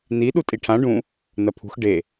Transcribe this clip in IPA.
n i ɗ u tʼ i ʈʰ ã ɖ ũ | n ɐ pʰ ṳ x ɖ e

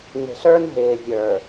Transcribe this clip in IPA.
n e̤˨ ɬ ə˞˦ n ɦ ɪː˨ vʲ ə˞˨

